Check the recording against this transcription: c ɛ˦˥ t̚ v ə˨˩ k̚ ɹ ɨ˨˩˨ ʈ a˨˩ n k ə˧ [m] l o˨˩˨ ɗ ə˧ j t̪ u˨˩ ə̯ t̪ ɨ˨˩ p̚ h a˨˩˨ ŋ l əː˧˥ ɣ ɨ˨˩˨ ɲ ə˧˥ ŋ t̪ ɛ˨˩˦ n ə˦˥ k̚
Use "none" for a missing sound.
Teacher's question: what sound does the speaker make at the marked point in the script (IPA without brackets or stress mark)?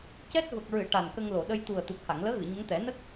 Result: ŋ